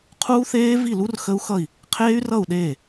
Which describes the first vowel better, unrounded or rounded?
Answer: rounded